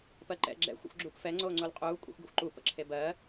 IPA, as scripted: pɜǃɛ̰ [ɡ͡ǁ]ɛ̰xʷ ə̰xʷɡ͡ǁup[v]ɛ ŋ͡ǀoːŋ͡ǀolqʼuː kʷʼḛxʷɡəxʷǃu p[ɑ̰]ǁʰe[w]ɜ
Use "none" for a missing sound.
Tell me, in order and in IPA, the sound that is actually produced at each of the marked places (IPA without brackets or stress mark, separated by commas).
ɡ͡ǁ, f, ə̰, b